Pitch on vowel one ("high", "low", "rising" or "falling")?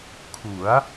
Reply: rising